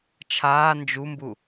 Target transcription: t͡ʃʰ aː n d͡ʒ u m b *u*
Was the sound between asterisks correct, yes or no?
yes